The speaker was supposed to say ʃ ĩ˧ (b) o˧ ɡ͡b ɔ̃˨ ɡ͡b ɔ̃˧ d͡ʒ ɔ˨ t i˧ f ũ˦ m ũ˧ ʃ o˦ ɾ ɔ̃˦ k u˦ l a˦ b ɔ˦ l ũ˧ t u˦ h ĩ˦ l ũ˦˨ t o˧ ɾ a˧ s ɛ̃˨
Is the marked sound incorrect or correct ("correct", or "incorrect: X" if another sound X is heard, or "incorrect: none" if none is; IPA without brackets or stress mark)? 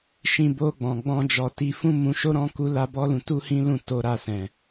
correct